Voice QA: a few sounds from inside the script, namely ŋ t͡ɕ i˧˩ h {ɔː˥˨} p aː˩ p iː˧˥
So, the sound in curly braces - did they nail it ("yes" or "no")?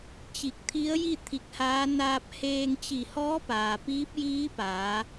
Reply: no